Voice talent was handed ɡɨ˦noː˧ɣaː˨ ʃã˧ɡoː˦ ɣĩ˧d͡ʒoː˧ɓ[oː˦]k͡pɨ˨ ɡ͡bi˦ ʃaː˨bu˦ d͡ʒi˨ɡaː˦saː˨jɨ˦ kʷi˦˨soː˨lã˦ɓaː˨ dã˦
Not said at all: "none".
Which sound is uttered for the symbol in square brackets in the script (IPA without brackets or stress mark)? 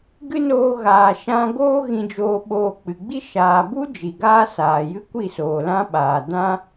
oː˧